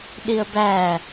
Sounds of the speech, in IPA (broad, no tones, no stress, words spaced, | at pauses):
ɗiə̯bæ